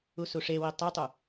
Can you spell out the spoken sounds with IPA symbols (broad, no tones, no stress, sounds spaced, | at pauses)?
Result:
u s u ʂ e w i tˤ o tˤ u